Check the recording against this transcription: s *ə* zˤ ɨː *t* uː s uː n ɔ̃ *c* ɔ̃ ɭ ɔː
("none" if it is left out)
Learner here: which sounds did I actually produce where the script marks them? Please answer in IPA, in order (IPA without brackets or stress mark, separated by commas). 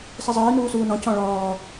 ə, n, c